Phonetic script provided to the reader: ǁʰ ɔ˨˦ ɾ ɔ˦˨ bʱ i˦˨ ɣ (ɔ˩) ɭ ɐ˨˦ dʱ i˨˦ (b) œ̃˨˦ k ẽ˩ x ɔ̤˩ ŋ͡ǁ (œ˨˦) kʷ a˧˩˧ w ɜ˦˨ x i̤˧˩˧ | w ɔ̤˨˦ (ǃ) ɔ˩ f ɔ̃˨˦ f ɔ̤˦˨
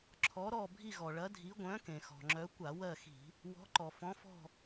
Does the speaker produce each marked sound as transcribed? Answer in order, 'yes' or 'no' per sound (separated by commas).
yes, no, yes, yes